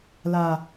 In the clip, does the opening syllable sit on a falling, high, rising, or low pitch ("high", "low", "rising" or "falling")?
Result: low